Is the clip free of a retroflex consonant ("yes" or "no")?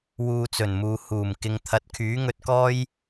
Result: yes